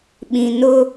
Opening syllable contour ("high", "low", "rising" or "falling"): low